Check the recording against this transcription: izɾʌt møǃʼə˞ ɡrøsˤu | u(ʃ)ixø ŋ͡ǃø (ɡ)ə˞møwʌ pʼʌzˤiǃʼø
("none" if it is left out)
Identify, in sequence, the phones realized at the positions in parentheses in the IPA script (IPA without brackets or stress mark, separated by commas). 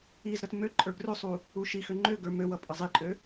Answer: ʃ, ɡ